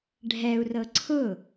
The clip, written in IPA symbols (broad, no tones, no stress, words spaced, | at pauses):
ɖʱɛu̯rɤ ǀʰʊ